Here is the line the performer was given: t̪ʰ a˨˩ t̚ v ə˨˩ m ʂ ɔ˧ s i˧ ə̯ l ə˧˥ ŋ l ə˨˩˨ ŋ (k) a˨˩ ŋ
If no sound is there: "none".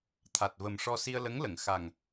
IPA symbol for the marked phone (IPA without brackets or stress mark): x